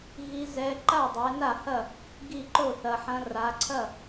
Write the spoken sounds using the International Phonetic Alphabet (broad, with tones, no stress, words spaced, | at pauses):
ɣi˧˥zɛ˧˥ ǃa˥˩ dˤɛ˩˧ na˥˩hɐ˥˩ | ɡi˥˩ǃo˥˩θɐ˩˧ħɐ̃˧˥ ra˩˧ǀʰɐ˥˩